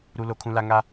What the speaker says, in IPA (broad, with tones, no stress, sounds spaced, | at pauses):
ɾ u˦ l o˦ kʰ ũ˦ l a˦ ŋ a˦